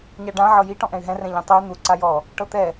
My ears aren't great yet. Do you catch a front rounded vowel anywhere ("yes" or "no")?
yes